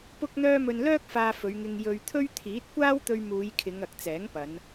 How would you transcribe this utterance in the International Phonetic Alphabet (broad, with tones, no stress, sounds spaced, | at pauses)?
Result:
p ʊ˥ k̚ n̪ œː˥ m ɵ˧ n l œː˥ k̚ f aː˧ f ɵ˨˧ ɥ ŋ ɪ˧ ŋ j ɵ˧ ɥ t̪ʰ ɵ˥ ɥ t̪ʰ iː˨˥ t̚ kʷ aː˥ w t̪ ɵ˧ ɥ m uː˨˧ j kʰ ɪ˨˧ ŋ ɐ˨ k̚ t͡s ɛː˨˥ ŋ p ɐ˨˧ n